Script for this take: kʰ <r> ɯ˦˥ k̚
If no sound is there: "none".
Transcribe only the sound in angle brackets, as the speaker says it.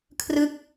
r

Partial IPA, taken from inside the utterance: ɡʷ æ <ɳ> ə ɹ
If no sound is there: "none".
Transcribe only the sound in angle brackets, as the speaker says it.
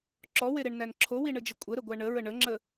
ɳ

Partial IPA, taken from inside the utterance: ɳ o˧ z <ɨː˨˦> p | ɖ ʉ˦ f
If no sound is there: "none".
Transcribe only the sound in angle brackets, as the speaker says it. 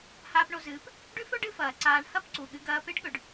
ɨː˨˦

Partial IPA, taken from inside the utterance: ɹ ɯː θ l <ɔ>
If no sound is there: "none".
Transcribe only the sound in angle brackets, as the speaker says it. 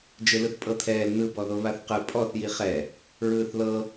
ɤ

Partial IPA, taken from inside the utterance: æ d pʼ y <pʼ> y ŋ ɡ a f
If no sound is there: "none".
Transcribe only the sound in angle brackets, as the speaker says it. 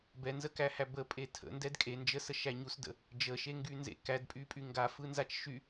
pʼ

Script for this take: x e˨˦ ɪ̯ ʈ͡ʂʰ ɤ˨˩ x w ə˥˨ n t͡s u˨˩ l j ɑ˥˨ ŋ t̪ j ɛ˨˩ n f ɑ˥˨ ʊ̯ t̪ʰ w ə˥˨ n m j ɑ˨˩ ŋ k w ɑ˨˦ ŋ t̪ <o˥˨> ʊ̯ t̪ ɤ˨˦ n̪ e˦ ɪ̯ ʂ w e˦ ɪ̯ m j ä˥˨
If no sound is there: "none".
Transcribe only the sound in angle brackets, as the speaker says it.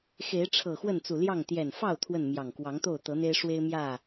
o˥˨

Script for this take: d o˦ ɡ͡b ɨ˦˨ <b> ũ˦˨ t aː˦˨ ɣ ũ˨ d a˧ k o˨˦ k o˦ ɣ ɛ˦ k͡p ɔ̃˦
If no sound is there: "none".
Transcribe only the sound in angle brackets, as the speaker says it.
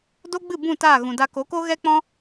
b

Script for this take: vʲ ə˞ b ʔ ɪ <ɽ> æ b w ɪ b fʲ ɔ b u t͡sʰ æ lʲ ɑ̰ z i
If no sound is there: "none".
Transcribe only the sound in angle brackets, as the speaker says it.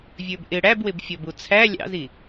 ɽ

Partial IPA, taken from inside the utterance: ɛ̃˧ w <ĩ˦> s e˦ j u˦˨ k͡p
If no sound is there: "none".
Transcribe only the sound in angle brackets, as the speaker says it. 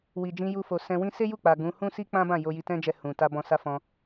ĩ˦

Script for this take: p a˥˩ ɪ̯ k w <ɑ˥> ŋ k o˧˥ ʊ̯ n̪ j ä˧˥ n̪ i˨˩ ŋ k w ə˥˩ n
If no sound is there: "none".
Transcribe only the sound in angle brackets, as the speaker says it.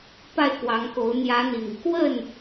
ɑ˧˥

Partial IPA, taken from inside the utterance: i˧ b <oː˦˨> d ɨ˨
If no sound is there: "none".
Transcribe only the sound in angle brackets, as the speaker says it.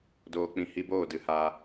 oː˦˨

